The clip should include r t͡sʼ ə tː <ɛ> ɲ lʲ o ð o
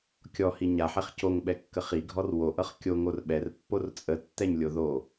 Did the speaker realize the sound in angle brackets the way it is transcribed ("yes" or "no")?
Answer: yes